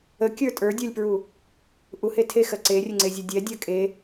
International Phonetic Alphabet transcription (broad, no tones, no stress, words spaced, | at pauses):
əkʲə˞ tʼə˞dʲə˞lʲpɹu | ʔuhe tʰexɜ ǀerʲəŋ͡ǀezʲə dʲɛdʲɜ kʼe